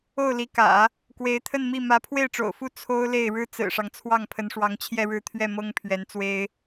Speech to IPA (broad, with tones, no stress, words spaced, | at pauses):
o˥˩ʊ̯li˧˥kä̰˨˩˦ | kwe˧˥ɪ̯t̪ʰə˥˧nmi˥˩ mä˧˥pʰwe˥˩ɪ̯ʈ͡ʂo̰˨˩ʊ̯fu˥˩ t͡sʰo˥ʊ̯le˥˩ɪ̯ ɻɻ̩˥t͡sɹ̩˨˩ʂɑ˦ŋ t͡sʰwɑ˥˩ŋpʰə˧˥nʂwɑ˧˥ŋ t͡ɕʰjɛ˥˧ɻɻ̩˥˧t̪ʰɥɛ˥˩ mɤ˥ŋpʰɥɛ˧˥nt͡swe˥ɪ̯